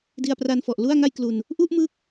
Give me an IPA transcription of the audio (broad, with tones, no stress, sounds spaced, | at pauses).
d i˧ a̯ p r a˧ n f ɔ˨˩ ʔ l u˥˩ a̯ ŋ a˥˩ j k l u˧ n | ʔ u˥˩ ʔ m ɯ˦˥ k̚